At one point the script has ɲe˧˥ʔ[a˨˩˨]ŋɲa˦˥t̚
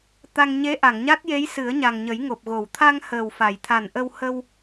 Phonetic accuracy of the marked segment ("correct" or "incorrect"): correct